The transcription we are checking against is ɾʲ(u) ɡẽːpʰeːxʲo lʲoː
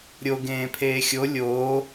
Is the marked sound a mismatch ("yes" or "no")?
yes